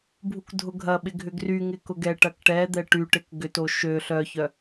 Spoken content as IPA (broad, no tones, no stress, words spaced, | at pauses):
bʱukdʱʊɡʱɐɓɪ ɡʱʏɡryŋɪ kʊɡɛʈɐk ʈɛd̪ɛ ʈyʈɪk ɡʏto ʃø ɬœçœ